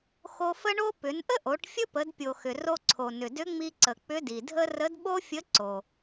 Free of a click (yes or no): no